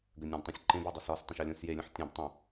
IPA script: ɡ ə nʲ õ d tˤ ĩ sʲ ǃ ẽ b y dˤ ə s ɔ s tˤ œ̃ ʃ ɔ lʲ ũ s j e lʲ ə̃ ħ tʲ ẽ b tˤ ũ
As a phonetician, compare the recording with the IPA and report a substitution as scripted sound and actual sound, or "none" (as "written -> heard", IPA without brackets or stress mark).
none